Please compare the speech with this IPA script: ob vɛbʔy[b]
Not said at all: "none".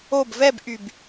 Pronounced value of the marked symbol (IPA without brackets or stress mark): b